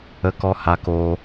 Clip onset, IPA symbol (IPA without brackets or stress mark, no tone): ə